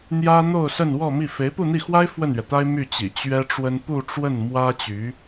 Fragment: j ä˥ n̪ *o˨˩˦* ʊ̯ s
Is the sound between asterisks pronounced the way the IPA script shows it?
no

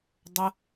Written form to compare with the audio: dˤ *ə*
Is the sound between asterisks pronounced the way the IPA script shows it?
yes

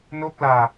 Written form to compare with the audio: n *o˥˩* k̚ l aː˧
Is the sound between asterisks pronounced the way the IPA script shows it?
no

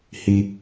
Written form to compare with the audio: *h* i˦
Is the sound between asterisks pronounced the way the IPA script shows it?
yes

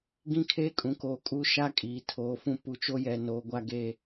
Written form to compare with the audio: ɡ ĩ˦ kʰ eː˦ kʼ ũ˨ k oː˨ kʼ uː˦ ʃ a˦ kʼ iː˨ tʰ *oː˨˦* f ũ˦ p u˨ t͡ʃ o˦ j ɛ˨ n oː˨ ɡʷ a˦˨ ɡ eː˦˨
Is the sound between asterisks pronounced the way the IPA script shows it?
yes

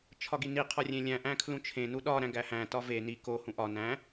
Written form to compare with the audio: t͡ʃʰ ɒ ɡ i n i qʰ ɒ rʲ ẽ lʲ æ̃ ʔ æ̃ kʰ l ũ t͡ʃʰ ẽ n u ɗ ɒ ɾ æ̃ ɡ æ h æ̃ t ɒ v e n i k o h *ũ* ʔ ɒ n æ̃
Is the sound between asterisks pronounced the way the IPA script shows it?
yes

